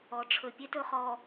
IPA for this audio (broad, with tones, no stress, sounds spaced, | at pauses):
ɔ˨ ʈ͡ʂʰ ɵ˨ pʲ e˦ t ɵ˨ χ ɔ˨